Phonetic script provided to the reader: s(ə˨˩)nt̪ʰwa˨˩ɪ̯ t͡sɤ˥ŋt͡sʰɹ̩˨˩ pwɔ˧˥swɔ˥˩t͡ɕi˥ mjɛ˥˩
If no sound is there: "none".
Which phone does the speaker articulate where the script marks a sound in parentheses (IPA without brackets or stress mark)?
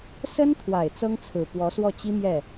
ə˥